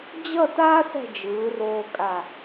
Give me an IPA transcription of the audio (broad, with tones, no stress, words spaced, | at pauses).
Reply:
d͡ʑʌ˥˧ta˥ sɛ̤˥˧d͡ʒɯː˩˧ roː˧kʼa˧˩